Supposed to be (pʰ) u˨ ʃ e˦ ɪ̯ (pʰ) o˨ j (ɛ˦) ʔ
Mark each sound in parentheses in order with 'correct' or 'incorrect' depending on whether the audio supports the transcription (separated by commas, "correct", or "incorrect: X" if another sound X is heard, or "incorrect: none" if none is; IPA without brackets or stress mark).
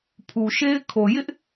correct, incorrect: kʰ, incorrect: ɪ˦